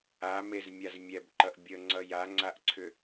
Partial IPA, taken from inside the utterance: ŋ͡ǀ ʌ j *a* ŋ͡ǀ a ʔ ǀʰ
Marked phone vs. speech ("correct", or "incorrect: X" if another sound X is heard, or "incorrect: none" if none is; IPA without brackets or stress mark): correct